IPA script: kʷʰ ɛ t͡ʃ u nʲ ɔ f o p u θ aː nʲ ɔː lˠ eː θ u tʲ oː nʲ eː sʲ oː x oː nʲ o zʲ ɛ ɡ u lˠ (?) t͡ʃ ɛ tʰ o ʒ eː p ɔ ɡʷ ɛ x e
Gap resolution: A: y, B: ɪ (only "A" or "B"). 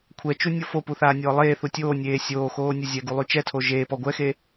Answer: A